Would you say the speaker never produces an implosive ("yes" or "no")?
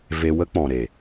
yes